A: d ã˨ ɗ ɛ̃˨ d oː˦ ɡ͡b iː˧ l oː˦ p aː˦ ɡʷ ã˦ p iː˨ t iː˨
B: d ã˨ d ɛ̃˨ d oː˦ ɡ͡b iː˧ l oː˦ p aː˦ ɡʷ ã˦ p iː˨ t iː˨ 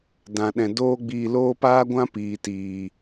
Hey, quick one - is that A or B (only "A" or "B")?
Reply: A